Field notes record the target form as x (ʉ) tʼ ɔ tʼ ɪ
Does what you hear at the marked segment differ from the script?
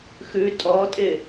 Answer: no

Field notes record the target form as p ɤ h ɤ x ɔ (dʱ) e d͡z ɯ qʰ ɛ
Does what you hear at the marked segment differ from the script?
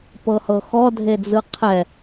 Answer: no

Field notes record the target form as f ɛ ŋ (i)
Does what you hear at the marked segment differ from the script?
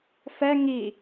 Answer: no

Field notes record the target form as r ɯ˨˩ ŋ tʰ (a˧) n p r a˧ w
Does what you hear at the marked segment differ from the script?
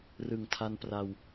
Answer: no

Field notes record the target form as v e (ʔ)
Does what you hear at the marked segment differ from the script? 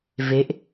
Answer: no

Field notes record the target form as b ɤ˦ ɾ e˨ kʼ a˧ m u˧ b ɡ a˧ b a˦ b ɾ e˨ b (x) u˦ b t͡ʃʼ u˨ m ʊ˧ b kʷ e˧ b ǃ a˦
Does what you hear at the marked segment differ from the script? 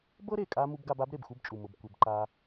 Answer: no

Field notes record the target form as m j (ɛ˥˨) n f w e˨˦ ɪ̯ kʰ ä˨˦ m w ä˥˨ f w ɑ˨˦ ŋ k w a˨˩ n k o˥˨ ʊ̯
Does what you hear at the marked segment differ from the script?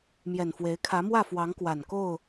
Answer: yes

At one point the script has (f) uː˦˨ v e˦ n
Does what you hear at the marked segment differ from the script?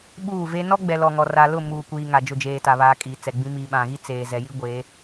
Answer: yes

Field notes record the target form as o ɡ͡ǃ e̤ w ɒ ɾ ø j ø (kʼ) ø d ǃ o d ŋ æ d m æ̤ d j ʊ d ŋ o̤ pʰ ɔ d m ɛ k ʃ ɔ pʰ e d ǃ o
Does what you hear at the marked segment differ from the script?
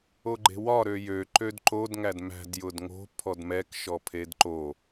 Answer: yes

